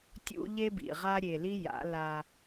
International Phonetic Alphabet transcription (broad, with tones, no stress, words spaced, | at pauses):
tʲṵ˦ ʎe˦bḭ˨ʁa˦ ɾʲe˨li˦ ja̰˨˦la˦